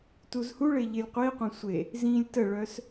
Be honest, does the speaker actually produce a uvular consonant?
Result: yes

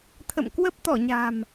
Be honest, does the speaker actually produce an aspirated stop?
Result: yes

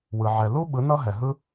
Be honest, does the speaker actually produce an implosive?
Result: yes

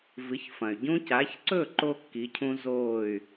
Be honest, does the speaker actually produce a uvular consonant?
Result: no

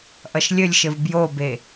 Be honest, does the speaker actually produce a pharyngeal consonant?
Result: no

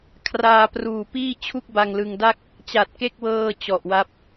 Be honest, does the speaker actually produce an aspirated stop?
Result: yes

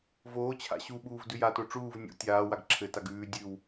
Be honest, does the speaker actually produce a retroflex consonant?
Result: yes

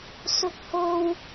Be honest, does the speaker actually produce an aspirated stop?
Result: no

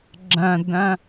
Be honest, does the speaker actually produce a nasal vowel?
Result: yes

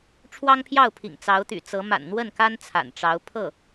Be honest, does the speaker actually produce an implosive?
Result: no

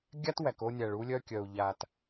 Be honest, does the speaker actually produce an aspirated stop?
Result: no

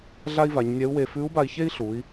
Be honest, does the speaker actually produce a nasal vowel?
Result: no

